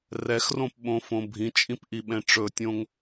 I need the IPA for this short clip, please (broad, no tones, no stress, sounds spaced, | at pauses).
r ɛ x r õ p ɓ õ f õ bʱ ĩ t͡ʃʼ ĩ p ʔ i ɓ ɛ̃ ʈ͡ʂ ɵ tʲ õ ŋ